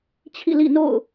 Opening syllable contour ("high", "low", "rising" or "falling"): falling